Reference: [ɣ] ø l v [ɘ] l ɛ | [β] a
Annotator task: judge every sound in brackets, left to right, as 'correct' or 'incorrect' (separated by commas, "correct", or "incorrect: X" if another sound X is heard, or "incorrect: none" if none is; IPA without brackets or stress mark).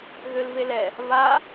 correct, incorrect: e, correct